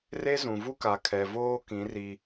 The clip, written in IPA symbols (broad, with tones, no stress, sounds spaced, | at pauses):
r e˦ z ũ˨ v u˦ k a˨ kʰ ɛ˨ v oː˦ k ĩ˨˦ r i˦